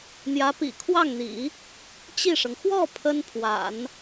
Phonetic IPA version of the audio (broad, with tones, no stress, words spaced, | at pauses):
n̪jä˧˥pḭ˨˩kʰwɑ˥˩ŋn̪ḭ˨˩˦ | t͡ɕi˥˩ʂɤ˩ŋ xwɔ˥˩ pʰə˥npʰwa̰˨˩˦n